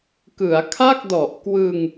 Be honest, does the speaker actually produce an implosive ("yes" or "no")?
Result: no